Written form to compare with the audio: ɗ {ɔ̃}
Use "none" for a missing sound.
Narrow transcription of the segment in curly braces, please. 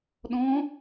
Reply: ɔ̃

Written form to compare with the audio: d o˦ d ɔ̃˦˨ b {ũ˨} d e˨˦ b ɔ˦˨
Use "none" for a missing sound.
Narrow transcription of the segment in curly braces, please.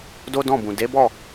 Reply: ũ˨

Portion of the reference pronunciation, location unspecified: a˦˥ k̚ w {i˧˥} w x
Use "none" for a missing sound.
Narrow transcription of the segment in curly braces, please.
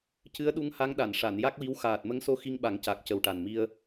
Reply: i˧˥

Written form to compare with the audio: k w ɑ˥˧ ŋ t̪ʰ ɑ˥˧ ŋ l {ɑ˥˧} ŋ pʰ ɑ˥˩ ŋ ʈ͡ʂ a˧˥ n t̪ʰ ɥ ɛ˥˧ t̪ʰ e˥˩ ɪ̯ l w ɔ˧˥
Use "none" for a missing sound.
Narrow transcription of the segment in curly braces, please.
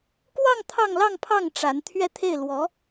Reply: ɑ˥˧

